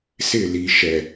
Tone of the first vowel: falling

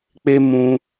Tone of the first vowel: high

